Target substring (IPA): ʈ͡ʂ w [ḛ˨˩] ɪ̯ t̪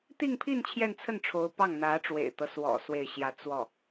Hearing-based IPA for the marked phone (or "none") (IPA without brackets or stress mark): ḛ˨˩